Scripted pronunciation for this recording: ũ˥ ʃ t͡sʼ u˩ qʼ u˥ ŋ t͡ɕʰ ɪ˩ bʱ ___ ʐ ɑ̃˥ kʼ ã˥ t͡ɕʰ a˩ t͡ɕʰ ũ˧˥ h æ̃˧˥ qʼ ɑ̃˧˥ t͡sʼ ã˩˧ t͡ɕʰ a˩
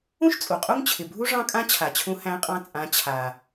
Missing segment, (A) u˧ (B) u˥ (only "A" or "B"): B